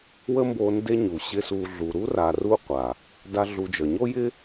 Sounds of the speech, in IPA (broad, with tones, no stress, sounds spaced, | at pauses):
w ə˦ m b o˧ n d e˦ ɲ u˨ ɕ ɪ˦ s u˧ ɮ u˨ ɾ u˦ r a˨ r u˦ qʷ a˨ | d a˦ ɮ u˧ d͡ʒ ə˨ ɲ o˦ j ɪ˦